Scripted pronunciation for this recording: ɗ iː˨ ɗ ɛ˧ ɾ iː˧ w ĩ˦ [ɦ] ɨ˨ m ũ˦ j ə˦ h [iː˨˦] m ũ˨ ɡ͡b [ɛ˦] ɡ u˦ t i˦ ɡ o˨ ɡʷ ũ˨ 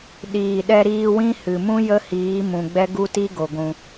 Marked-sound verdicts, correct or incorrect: incorrect, correct, correct

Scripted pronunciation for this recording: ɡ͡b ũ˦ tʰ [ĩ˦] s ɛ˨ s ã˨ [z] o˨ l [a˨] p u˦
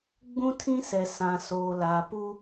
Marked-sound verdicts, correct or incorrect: correct, incorrect, correct

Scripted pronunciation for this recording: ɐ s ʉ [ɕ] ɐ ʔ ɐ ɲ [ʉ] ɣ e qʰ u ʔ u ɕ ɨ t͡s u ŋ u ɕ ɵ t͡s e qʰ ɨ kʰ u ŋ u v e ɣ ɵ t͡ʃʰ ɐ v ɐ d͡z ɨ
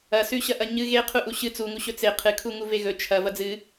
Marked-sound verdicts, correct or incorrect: correct, incorrect

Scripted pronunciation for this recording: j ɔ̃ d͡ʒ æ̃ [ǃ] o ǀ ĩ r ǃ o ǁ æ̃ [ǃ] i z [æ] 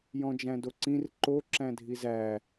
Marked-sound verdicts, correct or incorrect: incorrect, incorrect, correct

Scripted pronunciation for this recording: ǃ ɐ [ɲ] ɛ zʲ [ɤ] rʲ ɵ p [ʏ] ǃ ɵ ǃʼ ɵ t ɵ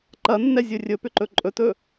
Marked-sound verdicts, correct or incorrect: incorrect, incorrect, correct

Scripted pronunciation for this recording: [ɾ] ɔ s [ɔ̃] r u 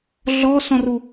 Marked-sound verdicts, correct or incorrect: incorrect, correct

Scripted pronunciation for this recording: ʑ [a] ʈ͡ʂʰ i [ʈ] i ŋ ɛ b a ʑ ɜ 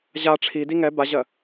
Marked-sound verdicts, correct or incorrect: correct, incorrect

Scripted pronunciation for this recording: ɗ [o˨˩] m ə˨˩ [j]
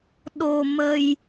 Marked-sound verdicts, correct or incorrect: correct, correct

